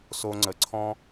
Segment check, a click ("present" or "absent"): present